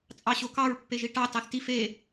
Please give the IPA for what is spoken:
t͡sʼ ɑ ɕ o k ɑ ɹ pː e ʒ i ʈ ɑ t ɑ θ t i f e

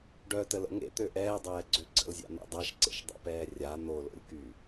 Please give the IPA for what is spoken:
ɖ œ t ə l ə̰ ŋ ḛ t̪ ø ʔ ɛː dˤ ɛː ɡ͡ǀ ø ɡ͡ǀ ə̰ l zʲ a̰ n̪ ɛ̰ dˤ a ʃ ǀ ḛ ʃ dˤ a̰ p ɛː rʲ a n̪ o l o̰ lʲ k y

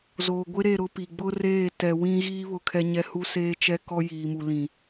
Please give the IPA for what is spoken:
z oː˨ ɡʷ ɪ˦ ɾ e˦˨ ɾ ʊ˦ p i˨ ɡ͡b ʊ˦ r eː˦˨ t ɛ˨ w ĩ˦ ɣ iː˦ β ʊ˦ kʰ ɛ˦ ɲ ɛ˦ h u˦ s eː˦ t͡ʃ ɛ˦ k ɔ˦ j iː˨ m u˨ l ĩ˨

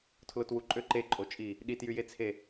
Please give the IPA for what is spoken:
tʰ l o t w u ǃʼ ø ǃ e ǃʼ o t͡ʃʼ i | ɗ i t j y j e t͡sʰ e

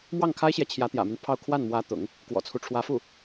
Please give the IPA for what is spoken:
m w ɑ˥˩ ŋ kʰ a˥ ɪ̯ ɕ j ɛ˨ t͡ɕʰ j ä˧˥ t̪ j ä̰˨˩ m y˦ n pʰ ɑ˥˧ ʊ̯ kʰ w a˥˩ n m w ä˧˥ t̪ ʊ̰˨˩˦ ŋ | k w ɔ̰˨˩ t͡sʰ u˦ ʈ͡ʂʰ w ä˧˥ f u˥˩

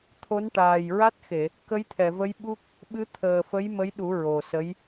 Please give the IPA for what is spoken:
t̪ʰ o˧˥ n ʈ aː˨˩ j ɹ a˦˥ t̚ x e˨˩˨ | k ə˧˥ j t̪ʰ ɛ˨˩˨ v ə˧˥ j ɓ u˦˥ k̚ | ɓ ɨ˧˥ t̪ʰ əː˨˩ f ə˧˥ j m ə˧˥ j ɗ u˨˩˦ ɹ o˨˩ s ə˧˥ j

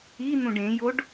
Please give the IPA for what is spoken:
i n̪ ũ ɖ ẽ j o ɖ

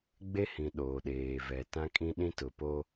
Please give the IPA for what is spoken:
ɡ͡b e˦ h ĩ˨ ɗ oː˨ ɗ eː˨ v ɛ˨ t ã˦ kʼ ĩ˦ ɗ ĩ˦ t ʊ˨ p o˦

